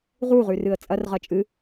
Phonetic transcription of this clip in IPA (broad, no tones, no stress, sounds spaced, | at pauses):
ʁ u ʁ ʉ r ɨ ə̯ t͡sʼ ɐ r ʁ ɐ t͡ʃʼ ɨ